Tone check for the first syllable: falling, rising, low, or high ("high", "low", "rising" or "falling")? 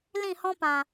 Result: falling